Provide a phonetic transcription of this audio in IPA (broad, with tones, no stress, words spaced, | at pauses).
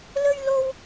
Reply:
lɵ˥ɥ lo˥w